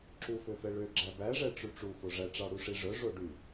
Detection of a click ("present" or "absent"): present